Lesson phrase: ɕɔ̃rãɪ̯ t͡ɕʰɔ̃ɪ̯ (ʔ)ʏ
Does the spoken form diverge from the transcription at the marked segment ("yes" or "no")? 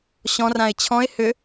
yes